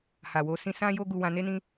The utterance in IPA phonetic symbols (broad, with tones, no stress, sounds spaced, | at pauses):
h a˨ w o˨˦ s ĩ˧ s ã˦ j o˦ ɡ u˧ w ã˧ n e˦ n ĩ˦